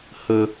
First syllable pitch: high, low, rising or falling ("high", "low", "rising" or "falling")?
low